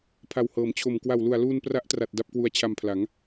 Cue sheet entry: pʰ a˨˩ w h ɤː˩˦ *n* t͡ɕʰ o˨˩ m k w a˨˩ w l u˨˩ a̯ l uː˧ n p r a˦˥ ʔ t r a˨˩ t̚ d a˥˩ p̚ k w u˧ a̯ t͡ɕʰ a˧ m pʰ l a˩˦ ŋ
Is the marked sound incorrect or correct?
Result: incorrect